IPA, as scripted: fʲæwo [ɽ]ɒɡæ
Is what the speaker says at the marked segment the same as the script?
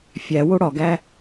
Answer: yes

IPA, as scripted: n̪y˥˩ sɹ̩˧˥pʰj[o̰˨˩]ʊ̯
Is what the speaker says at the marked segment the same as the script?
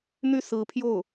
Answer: no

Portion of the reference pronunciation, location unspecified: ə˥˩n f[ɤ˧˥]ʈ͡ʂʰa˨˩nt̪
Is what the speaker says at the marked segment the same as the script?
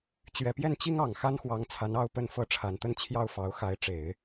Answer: yes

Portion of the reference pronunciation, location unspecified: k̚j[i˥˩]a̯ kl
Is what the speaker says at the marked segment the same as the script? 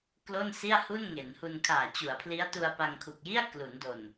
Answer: yes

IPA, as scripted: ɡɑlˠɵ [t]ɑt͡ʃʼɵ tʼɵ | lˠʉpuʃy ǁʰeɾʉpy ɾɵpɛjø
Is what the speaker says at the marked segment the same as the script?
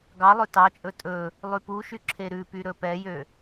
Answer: yes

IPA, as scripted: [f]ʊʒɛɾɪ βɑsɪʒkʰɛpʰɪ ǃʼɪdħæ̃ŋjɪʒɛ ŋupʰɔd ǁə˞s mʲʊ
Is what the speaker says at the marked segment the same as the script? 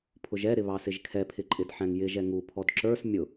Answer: no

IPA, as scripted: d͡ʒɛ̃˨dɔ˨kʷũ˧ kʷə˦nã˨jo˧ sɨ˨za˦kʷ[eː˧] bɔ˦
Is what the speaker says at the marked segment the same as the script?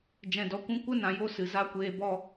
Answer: yes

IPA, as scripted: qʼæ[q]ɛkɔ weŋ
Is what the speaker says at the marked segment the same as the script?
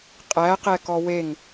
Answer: yes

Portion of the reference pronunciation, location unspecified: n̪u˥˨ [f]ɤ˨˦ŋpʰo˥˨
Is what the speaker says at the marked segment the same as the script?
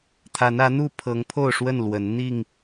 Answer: no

